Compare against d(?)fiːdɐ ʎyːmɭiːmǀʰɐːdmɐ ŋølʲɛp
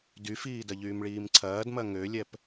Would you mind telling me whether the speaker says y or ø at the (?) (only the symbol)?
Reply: y